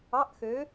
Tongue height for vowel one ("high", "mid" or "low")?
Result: low